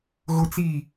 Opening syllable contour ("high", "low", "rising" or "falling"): high